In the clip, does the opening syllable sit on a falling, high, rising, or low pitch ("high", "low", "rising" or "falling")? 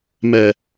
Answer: low